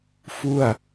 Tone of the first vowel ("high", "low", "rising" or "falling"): falling